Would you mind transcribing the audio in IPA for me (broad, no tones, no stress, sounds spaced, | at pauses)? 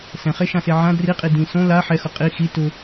s ɛ̃ χ e ʃ ã s e ʕ ã d r i qʼ i d ĩ s õ l a ħ ɛ x ʊ qʼ i x i t ʊ